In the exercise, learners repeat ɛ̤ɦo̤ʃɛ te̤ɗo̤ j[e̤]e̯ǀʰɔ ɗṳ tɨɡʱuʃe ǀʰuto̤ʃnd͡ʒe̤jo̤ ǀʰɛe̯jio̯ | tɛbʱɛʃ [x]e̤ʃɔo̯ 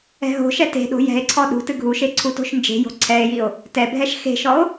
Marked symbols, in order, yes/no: no, yes

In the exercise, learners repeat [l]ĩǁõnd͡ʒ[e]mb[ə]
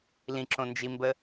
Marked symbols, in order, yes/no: yes, no, yes

